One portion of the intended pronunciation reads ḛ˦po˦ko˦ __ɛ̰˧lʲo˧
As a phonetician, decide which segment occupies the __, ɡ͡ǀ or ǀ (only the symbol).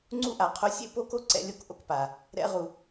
ǀ